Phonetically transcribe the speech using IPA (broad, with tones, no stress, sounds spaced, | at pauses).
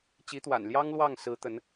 t͡ɕ i˧˥ t̪ w a̰˨˩ n l j ɑ˥ ŋ l w ɑ˥˩ ŋ s ɹ̩˧˥ t̪ ə˧˥ n